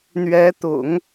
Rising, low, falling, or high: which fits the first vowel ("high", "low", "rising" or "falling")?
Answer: rising